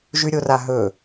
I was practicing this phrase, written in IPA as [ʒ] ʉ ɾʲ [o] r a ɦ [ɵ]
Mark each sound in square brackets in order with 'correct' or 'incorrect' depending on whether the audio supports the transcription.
correct, correct, correct

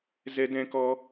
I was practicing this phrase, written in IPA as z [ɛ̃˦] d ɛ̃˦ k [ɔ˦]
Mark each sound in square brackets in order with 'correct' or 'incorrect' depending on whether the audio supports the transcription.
incorrect: ɛ˦, correct

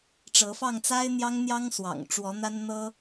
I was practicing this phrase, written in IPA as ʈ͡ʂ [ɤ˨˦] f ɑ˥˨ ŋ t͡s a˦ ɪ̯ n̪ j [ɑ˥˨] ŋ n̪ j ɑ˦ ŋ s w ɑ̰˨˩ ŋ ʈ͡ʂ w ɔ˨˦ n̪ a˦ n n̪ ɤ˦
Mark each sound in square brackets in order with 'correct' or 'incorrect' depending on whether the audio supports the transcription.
correct, incorrect: ɑ˦

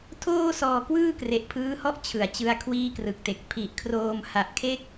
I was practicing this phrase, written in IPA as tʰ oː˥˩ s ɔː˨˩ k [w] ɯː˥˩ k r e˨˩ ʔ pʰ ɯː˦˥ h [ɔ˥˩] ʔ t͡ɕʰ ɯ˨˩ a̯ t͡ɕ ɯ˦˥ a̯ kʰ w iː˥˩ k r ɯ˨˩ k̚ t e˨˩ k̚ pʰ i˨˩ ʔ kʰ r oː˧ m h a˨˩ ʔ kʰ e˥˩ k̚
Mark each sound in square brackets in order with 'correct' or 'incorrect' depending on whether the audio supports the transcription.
correct, correct

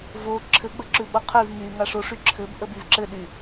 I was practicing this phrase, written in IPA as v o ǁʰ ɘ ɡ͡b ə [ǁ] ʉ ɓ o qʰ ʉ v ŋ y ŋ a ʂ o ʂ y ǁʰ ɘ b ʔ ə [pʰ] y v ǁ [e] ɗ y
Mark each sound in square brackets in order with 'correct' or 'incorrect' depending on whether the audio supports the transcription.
correct, incorrect: b, incorrect: ɘ

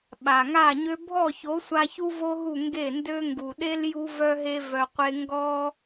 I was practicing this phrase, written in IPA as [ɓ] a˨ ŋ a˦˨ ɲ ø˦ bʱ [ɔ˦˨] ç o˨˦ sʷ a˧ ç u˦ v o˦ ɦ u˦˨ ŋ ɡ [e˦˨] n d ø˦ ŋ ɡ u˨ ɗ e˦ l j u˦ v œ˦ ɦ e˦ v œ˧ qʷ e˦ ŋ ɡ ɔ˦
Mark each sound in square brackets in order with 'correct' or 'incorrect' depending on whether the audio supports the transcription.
correct, correct, correct

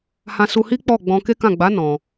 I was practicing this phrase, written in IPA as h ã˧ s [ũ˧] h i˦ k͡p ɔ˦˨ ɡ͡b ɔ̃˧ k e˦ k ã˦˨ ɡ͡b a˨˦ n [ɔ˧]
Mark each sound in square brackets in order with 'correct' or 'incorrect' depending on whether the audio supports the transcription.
incorrect: u˧, incorrect: ɔ̃˧

